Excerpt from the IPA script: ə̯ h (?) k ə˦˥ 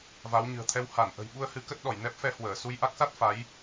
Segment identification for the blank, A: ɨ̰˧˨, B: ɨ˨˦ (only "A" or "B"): B